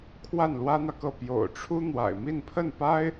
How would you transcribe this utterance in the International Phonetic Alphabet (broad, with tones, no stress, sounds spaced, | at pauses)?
kʰ w a˥˩ n l w ä˥ n̪ ä˨ k ɤ˥˩ p j o̰˨˩ ʊ̯ ʈ͡ʂʰ u˥ n̪ w a̰˨˩ ɪ̯ m i˥˧ n pʰ ə˥˩ n p a˥ ɪ̯